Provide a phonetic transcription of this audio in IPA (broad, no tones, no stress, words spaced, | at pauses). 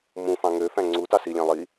mũfɑ̃ ŋøfæ̃ ŋ͡ǀutɑ silʲæ̃ lˠi